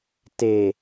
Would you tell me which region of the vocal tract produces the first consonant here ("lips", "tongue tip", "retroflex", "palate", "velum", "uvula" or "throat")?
tongue tip